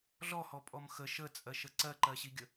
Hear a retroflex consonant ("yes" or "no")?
no